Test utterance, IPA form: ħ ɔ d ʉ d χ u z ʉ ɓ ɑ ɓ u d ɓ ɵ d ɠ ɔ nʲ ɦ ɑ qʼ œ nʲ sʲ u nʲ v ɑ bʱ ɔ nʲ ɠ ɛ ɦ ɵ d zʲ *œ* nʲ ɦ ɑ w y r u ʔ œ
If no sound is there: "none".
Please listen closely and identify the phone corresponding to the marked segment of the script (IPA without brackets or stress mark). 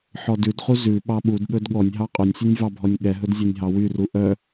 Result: œ